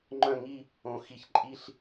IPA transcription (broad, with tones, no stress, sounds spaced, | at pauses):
ŋ͡ǃ œ̃˦˨ ŋ i˦˨ | õ˨ x i˨ ç ǃʼ i˦˨ ɬ